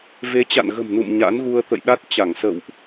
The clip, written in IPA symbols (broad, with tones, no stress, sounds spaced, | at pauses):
v e˨˦ t͡ɕ a̰˧˨ n ɣ ə̤˨˩ m n ṵ˧˨ m ɲ a̰˧˥ n ɣ u˧ ə̯ t̪ ə̰˧˨ j ɗ a˦˥ t̚ t͡ɕ a˧˩ ŋ s ə̰˧˨ w ʔ